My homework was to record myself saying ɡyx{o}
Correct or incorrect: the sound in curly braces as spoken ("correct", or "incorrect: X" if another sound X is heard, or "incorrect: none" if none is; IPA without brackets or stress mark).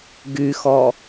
incorrect: ɔ